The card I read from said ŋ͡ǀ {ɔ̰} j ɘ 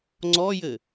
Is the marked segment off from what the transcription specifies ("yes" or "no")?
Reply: yes